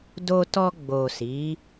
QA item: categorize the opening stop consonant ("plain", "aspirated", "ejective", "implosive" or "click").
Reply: plain